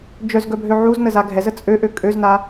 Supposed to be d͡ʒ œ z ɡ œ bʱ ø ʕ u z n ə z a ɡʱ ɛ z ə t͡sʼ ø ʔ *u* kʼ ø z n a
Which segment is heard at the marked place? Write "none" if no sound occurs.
ø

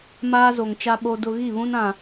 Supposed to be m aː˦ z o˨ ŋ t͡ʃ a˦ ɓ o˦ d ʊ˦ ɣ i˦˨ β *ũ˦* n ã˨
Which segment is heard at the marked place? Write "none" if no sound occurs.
ũ˦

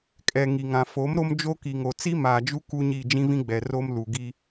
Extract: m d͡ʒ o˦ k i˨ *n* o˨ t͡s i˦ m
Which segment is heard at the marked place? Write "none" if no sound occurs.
ŋ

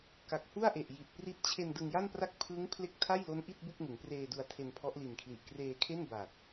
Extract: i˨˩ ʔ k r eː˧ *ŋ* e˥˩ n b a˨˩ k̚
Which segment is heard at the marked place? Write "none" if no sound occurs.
kʰ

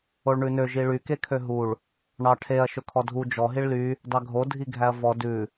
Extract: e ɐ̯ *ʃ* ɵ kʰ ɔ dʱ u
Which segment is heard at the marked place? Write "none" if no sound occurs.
ʃ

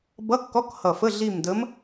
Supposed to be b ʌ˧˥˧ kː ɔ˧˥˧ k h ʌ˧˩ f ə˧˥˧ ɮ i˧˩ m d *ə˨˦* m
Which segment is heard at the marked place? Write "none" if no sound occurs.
ə˨˦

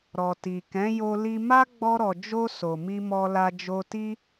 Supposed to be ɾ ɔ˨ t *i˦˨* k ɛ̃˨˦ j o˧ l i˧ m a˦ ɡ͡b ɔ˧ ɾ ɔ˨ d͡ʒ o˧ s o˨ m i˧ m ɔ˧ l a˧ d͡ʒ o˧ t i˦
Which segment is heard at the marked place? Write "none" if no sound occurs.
i˨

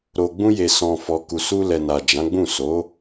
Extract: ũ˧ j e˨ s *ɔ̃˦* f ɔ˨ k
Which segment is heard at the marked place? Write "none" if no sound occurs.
ɔ̃˨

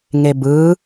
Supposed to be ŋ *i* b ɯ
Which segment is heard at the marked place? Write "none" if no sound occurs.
e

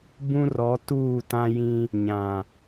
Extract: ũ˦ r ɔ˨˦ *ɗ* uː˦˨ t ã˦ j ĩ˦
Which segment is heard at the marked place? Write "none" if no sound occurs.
t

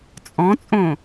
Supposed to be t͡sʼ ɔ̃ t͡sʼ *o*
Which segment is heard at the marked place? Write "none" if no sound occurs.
õ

